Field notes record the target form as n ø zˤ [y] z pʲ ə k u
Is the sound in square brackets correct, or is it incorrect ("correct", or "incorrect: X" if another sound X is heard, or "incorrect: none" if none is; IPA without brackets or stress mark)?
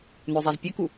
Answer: incorrect: i